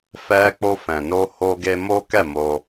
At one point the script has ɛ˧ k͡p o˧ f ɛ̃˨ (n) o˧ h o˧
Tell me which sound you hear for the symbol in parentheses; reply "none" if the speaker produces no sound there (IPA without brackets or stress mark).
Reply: n